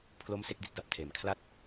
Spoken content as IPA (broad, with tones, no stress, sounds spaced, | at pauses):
pʰ l o˦˥ m s e˥˩ k̚ d i˨˩ t̚ d a˥˩ p̚ tʰ eː˩˦ m kʰ l a˦˥ t̚